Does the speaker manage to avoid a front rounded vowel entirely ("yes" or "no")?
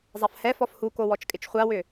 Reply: no